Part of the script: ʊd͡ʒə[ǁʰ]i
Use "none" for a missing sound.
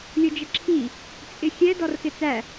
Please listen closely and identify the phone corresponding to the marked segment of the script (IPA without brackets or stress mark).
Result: ǁʰ